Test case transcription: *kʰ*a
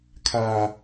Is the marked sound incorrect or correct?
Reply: correct